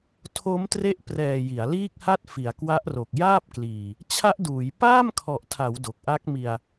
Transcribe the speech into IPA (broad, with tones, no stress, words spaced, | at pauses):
tʰo˦˥mtre˦˥ʔprɛː˨˩ ji˩˦a̯liː˥˩k̚ha˥˩t̚ fi˩˦a̯kwa˦˥ʔro˨˩k̚ jaː˥˩p̚kliː˨˩ | t͡ɕʰa˦˥ʔduː˩˦j paː˥˩mkʰɔ˨˩ʔtʰa˩˦w do˨˩k̚ʔa˦˥k̚mi˧a̯